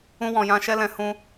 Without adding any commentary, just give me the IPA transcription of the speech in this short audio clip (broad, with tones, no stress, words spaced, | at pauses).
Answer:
ũ˧wɔ̃˨jã˧ ʃɛ˦lɛ̃˧ hũ˧